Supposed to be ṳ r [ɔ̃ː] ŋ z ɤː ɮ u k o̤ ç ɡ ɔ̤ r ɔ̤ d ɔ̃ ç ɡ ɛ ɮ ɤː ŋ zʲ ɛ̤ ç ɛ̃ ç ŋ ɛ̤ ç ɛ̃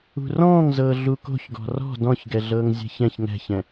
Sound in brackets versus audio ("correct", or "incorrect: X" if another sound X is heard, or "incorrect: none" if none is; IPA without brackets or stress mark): correct